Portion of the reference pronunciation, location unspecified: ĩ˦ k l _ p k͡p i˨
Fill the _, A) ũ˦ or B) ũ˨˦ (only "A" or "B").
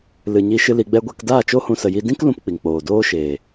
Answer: A